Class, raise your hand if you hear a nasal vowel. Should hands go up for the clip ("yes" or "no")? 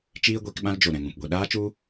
yes